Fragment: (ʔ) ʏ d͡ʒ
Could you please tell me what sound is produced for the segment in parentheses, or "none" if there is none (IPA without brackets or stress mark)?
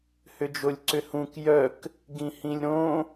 h